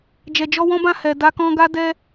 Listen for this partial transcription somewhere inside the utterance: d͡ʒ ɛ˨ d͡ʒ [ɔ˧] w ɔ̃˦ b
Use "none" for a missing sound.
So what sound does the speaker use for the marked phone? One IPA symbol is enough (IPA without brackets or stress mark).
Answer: ɔ˧